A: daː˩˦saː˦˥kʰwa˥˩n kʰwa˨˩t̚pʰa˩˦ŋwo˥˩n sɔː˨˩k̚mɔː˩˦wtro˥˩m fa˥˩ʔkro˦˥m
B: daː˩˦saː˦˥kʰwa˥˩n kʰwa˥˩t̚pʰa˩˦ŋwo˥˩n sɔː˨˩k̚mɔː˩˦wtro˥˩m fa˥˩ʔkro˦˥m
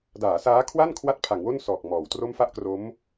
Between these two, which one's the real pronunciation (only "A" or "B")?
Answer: B